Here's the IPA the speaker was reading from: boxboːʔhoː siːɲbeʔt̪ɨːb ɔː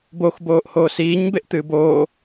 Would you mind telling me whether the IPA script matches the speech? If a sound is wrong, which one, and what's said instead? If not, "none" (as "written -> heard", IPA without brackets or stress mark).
ɔː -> oː